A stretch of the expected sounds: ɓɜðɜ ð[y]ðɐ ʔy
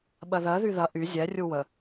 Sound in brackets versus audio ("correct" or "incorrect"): correct